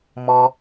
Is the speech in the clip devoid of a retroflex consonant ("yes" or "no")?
yes